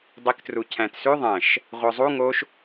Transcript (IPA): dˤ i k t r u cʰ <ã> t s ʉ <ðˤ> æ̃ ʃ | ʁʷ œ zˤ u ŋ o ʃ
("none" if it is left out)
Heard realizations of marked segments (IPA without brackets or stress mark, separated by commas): æ̃, ðˤ